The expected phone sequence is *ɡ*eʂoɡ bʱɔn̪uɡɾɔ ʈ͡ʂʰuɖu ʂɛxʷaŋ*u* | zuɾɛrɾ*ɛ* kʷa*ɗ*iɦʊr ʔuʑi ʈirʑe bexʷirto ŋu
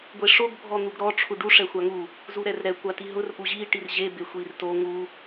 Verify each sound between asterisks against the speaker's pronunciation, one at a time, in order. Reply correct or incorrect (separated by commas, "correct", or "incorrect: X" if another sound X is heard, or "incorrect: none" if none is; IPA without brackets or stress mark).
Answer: incorrect: ɡʷ, correct, correct, incorrect: t